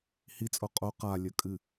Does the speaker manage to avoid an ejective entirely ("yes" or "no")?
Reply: no